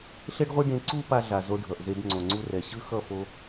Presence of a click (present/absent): present